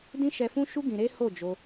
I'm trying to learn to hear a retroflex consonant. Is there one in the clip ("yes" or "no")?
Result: no